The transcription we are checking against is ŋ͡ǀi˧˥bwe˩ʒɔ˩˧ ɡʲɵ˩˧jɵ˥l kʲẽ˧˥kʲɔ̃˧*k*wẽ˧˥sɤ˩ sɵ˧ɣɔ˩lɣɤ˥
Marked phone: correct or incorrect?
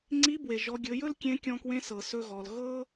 correct